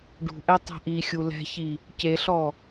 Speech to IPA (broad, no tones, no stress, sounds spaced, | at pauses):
ɖ ṳ ʔ ɛ tˤ ɛ̤ ʔ i xʲ u l ɛ̤ ç i | c e ɬ ɔ